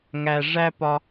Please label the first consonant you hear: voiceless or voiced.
voiced